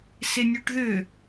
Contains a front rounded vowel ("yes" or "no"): yes